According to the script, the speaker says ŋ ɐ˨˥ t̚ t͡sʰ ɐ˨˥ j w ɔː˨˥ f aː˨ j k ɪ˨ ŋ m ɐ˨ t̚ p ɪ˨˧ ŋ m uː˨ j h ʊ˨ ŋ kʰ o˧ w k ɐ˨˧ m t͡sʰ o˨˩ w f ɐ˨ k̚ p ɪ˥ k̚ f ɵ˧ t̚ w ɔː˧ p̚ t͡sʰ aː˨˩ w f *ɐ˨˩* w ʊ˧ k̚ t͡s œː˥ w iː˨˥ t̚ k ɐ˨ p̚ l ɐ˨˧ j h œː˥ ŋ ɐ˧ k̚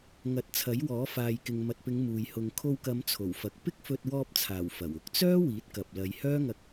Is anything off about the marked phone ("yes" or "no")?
no